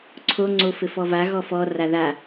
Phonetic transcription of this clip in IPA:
ǀʰ o ŋ͡ǀ o f ɘ f ɔ v a ɣ ɔ f ɔ r a ð a

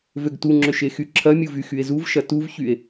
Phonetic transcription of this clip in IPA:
v ø ɡ t u ŋ͡ǁ ʏ ʃ e x y ǁʰ ɐ mʲ u v y x y e̯ z u v ʃ ɐ t u v ç y e̯

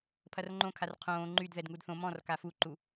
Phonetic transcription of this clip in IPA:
pʰ ɐ r ŋ͡ǃ õ kʰ a r qʰ õː ŋ͡ǃ y d ð ɛ d ŋ u d θ õ m ɔ̃ r k a f u ǃ u

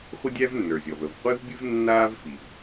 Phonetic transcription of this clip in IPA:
χʷ ə˥ dʲ æ˥ v nː ə˞˩ zʲ ɔ˩ v ə˩ v qʷ i˥ v bʲ ɨ˥ v nː aː˥ v f i˩ v

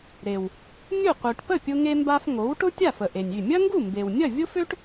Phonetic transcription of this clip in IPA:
ɾ e˩ w | nʲ ʊ˥˩ qʷ œ˩ ʈ p ə˥˩ pʲ ʊ˧ ŋ e˧ m b a˧ f ŋ o˩˥ w ʈ ʊ˥ tʲ a˥˩ f ə˩ ʔ e˩ nʲ y˥˩ mʲ ɐ˥ ŋ ɡ u˥˩ m b e˩ w nʲ ɐ˥˩ vʲ ʊ˥ f ø˥ ʈ

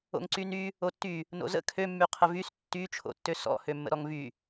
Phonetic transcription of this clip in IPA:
o̰ ŋ ǀ y n y | o tː y | n o̰ z ə̰ kʰ ø mː y qʰ ə v y s tː y t͡ʃʰ o̰ tː ø s ɔ̰ h ø mː ə̰ ɾ ɔ ŋ v y

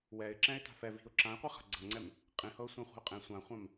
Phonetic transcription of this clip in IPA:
w ɛ ɪ̯ ǁ ɛ̃ ɪ̯ t a̤ f ɛ v i̤ ʊ̯ ǁ ã ɪ̯ qʷ i χ a̤ ɡ͡ǀ ɤ ŋ͡ǀ ɛ m | qʼ ĩ h ɤ ʊ̯ sʷ ẽ χʷ i̤ ʊ̯ qʼ ẽ sʷ ã χʷ ã m

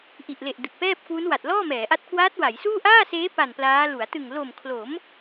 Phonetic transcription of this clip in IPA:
ʔ i˨˩ ʔ l e˨˩ ʔ d ɯ˨˩ k̚ p ɛː˥˩ p̚ k w u˦˥ n w a˨˩ t̚ l ɔː˥˩ m ɛː˩˦ ʔ a˦˥ t̚ k w aː˦˥ t̚ w a˩˦ j s uː˥˩ ʔ aː˥˩ s eː˦˥ p a˨˩ n p l aː˦˥ l u˩˦ a̯ t ɯ˨˩ ŋ l o˨˩ m kʰ l o˩˦ m

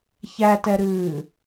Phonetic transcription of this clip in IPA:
ç æ t ɛ ɾ ɨː

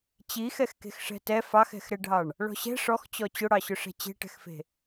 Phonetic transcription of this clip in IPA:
t͡ɕ i x ɛ x k e̤ x ʂ ɛ̤ t ɛ f ɑ x ɛ̤ x ɾ ɛ ɖʱ ɑ ɳ | ɭ ɔ̤ ɕ ɛ̤ ʂ ɔ x t͡ɕ ɔ t͡ɕ ʊ ɽ ɑ ɕ ʊ ʂ ɛ̤ t͡ɕ e̤ ʈ ɛ̤ x f e̤

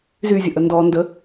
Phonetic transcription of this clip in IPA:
z y zʲ ə ʔ ə n d ɔ n d ə

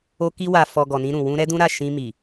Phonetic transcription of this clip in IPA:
o˧ k i˧ w a˨ f ɔ˨ ɡ ɔ˨ n ĩ˧ ɾ ũ˨ w ũ˧ ɾ ɛ˦ d ũ˦ ɾ a˦˨ ʃ ĩ˧ m i˨

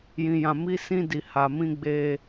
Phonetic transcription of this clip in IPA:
j ĩ˨ j ã˨ m i˨˦ s ĩ˧ d i˨ h a˨ m ĩ˧ ɡ͡b e˧

